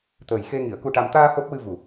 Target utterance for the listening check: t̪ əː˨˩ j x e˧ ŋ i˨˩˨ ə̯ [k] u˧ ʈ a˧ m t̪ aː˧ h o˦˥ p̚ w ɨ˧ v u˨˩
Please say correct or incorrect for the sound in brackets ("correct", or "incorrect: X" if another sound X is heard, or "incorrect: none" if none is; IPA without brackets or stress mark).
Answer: correct